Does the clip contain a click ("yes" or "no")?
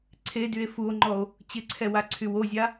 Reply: yes